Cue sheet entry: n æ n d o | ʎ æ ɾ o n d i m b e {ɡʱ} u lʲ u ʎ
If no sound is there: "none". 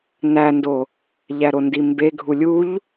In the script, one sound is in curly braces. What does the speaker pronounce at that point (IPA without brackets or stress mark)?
ɡʱ